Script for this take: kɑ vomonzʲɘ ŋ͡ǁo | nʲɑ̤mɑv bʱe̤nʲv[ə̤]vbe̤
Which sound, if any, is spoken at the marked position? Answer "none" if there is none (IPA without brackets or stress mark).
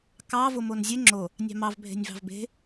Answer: ɑ̤